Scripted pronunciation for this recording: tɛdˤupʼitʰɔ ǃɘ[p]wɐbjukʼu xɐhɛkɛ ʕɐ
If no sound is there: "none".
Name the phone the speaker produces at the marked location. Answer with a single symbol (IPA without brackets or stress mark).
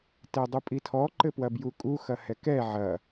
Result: p